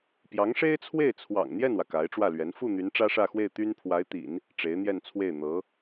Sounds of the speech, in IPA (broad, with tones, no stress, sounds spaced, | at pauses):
p j ɑ˧˥ ŋ ʂ e˥ ɪ̯ t͡sʰ w e˥˩ ɪ̯ t͡sʰ w ɑ̰˨˩ ŋ n̪ j ɛ˥˩ n w ä˩ k a˧˥ ɪ̯ ʈ͡ʂ w ä˥˩ l ɥ ɛ˧˥ n f u˥˩ n̪ y˧˥ n ʈ͡ʂ ä˥ ʂ ä˥˧ x w e˥˩ ɪ̯ t̪ y˥ n pʰ w a˧˥ ɪ̯ t̪ ḭ˨˩˦ n | ʈ͡ʂ e˧˥ ɪ̯ n̪ j ɛ˥˧ n t͡sʰ w e˥˩ ɪ̯ n̪ ɤ˧˥